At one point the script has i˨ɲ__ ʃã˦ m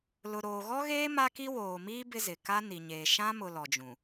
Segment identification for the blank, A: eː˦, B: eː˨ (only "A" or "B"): B